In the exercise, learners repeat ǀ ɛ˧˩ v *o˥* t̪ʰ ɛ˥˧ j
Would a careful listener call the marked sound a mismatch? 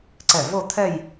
yes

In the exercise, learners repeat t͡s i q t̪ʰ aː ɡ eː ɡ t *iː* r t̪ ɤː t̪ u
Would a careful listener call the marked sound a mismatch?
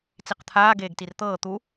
yes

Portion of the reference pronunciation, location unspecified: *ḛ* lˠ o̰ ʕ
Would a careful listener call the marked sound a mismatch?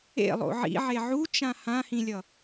no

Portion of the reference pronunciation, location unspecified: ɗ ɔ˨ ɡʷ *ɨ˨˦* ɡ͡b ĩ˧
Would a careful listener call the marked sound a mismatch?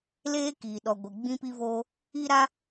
yes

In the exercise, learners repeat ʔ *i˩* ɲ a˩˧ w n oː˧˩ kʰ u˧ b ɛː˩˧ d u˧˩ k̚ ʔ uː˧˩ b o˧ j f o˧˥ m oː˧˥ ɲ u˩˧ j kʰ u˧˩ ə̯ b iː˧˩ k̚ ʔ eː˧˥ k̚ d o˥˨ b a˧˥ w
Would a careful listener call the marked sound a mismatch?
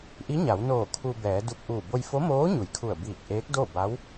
yes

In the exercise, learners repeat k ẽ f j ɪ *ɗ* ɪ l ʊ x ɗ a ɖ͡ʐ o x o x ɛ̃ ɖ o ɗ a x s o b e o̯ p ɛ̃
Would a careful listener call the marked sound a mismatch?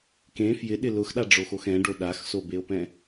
no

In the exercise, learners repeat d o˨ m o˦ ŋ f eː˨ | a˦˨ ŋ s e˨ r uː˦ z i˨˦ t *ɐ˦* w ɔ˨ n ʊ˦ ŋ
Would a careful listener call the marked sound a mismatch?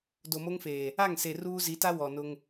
yes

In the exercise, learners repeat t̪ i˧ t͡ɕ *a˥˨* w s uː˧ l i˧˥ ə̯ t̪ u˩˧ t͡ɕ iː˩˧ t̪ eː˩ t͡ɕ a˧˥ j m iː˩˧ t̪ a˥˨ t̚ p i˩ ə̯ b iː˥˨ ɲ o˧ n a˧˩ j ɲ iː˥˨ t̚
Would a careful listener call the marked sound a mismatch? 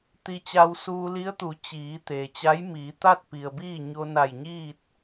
yes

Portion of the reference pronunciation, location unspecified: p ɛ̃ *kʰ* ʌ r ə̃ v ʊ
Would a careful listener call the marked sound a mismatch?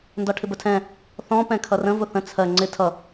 no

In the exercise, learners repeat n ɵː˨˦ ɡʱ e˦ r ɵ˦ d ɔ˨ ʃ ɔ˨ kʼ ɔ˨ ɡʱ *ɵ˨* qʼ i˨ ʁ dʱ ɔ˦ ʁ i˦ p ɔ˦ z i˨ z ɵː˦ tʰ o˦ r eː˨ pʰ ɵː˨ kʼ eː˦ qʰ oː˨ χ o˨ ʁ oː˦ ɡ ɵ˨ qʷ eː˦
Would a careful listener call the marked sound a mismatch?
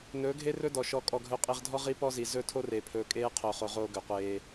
no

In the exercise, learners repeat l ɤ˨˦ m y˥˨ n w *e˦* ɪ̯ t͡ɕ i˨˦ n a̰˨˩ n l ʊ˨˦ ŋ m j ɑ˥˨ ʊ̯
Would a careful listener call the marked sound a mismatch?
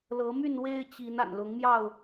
no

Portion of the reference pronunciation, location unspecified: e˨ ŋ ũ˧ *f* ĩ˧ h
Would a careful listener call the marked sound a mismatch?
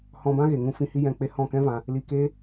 no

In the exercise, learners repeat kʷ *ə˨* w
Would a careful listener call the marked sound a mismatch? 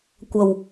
yes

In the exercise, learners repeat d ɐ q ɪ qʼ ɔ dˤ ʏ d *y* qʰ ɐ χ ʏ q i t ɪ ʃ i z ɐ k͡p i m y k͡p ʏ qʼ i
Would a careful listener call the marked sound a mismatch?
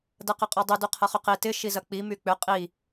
no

